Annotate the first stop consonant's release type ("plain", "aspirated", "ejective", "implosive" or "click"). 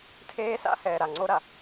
aspirated